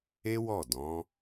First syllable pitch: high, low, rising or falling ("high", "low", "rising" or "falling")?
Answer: high